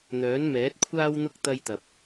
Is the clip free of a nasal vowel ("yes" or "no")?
yes